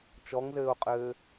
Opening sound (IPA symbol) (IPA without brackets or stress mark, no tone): t͡ʃ